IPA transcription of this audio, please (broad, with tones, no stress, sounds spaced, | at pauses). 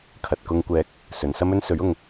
kʰ ɐ˨ t̚ k ʊ˧ ŋ kʷ ɛː˨˥ k̚ | s ɵ˨ n s ɐ˥ m ɵ˥ n s ɵ˨˥ ɥ ʊ˨ ŋ